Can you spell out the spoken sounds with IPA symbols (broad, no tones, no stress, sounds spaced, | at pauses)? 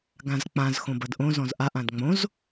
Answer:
ɡ ã z k͡p ã z x õ b ɐ d ʔ õ z ɔ̃ z ʔ a ʔ ã d ŋ͡m õ z